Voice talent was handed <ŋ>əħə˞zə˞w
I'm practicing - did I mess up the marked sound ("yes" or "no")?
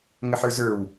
no